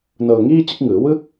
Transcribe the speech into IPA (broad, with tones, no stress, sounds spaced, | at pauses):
n ɤː˧ ŋ iː˥˩ t͡ɕ ɯ˦˥ k̚ ŋ ɯː˩˦ w ɯ˦˥ k̚